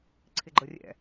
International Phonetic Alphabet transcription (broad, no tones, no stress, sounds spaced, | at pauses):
ǀʰ ɪ ɡ͡ǃ ə rʲ ɛ̰